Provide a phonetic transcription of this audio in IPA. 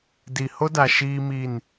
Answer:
d i˨ h o˦ d a˨ ʃ iː˦ m i˦˨ n

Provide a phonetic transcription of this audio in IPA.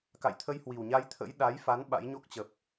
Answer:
k a̰˧˨ j t̪ʰ ə˧ j h w i˨˩ w ɲ a˧ j t̪ʰ ə̰˧˥ j ɗ a˨˦ j f a˨˦ n ɓ a̰˧˥ j ɲ o˦˥ k̚ t͡ɕ ə˨˩ p̚

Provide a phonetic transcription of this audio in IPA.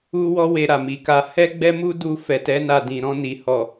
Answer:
u˦ w ɔ˦ w e˧ ɾ a˨ m i˨ k a˧ h ɛ˦ ɡ͡b ɛ˦ m u˦ d u˦˨ f ɛ˨ t ɛ˨˦ n a˦˨ d ĩ˨ ɾ ɔ̃˧ n i˨ h ɔ˨

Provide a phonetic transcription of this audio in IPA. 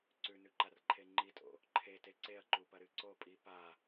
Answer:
ǀ ʉ n ʉ ǃ a r ǃʰ e ŋ͡ǃ i tʼ o̰ | ǃʰ e t e ǀ e ɐ̯ ǃ u p ɐ ɾ ɨ ǀ o pʼ i p a

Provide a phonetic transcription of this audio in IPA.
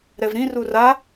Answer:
ɾ ɛ v ɾ ĩ r u r a

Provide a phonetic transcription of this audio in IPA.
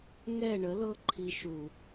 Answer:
ŋ ɛ˦˨ ɳ ə˨˦ l ɤ˦ ǃʰ i˧ ʃ u˨

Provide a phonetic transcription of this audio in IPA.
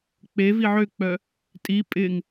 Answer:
k͡p e v i ʕ ø k͡p œ | tʼ i pʼ ɪ ŋ

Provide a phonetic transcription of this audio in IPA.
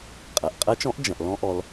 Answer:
qʼ ɐ˩ ʔ qʼ ɐ˨˦ t͡ʃ ɔ̃˨˦ ʔ d͡ʒ ɐ̃˩ ʔ l ɔ̃˨˦ ʔ ɔ˩ l

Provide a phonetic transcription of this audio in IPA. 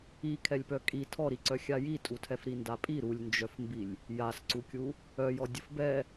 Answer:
i kʰ ɛ lʲ p œ kʼ i tʰ ɔ ɾ i ǀ œ xʲ a j i tʼ u tʰ ɛ f ɾ i n d a pʼ i ɾ u lʲ n d͡ʒ œ f m b i lʲ | j a s ǀ u kʲ u | œ j ɔ dʲ ə f b ɛ

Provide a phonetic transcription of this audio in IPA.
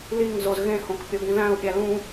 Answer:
l i ŋ z o z ɣ ẽ h õ k pʲ o ɡ ĩ ð æ̃ u̯ pʲ æ l ũ

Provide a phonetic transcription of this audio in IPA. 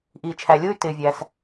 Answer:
ʔ iː˩ t͡ʃʰ æ˩ lʲ ʊː˥ y̯ t ɪː˩ vʲ æ˩ s

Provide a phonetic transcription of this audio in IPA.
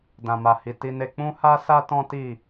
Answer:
d ã˨ m a˨ h i˨ t i˧ n e˧ k͡p ũ˦ h a˦ s a˦ t ɔ̃˦ t i˦˨

